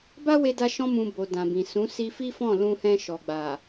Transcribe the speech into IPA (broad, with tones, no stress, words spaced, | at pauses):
ba˦we˧da˧ ʃɔ̃˧mũ˨ bo˨dã˨bĩ˨ sũ˨˦ si˧fi˦fɔ̃˦˨ lũ˧hɛ̃˧ ʃɔ˨ɡ͡ba˨